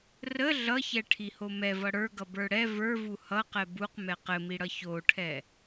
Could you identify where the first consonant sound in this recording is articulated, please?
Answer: alveolar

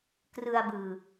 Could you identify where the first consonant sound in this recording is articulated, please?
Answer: velar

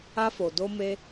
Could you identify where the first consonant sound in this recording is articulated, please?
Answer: labial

